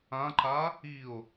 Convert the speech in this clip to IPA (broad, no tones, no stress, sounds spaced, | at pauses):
ã ǃ a | i o̯